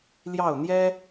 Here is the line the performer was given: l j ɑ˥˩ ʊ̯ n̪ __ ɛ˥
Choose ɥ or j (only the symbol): j